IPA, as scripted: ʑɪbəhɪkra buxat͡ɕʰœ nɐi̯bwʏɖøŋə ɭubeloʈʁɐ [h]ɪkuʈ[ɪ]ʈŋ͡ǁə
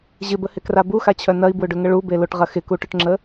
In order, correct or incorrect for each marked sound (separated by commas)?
incorrect, incorrect